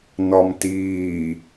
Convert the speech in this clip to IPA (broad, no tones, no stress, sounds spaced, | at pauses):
n ɒ m t iː